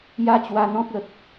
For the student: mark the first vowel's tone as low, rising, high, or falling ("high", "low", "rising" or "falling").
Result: high